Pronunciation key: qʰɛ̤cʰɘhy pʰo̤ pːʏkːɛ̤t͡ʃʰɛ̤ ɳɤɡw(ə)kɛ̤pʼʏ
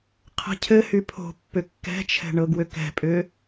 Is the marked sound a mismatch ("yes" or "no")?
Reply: yes